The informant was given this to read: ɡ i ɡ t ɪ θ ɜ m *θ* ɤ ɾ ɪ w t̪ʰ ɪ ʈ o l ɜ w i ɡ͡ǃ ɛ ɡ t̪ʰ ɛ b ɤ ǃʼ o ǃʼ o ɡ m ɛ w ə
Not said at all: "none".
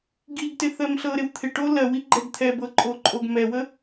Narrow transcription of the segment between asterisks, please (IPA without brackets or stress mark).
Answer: ɬ